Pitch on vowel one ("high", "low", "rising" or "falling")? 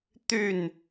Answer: falling